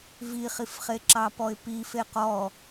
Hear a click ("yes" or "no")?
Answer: yes